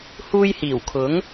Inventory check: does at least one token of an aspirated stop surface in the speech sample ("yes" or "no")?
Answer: yes